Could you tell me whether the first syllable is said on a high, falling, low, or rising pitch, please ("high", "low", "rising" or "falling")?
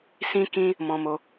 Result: high